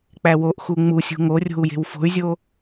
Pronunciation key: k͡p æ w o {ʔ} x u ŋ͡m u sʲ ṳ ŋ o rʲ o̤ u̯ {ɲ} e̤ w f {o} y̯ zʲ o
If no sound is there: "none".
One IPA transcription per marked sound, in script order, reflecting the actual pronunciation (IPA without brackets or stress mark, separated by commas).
ʔ, j, o̤